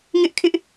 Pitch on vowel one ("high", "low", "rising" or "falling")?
high